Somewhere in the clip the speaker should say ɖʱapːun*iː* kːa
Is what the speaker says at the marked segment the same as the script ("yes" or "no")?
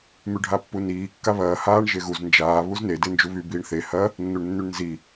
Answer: yes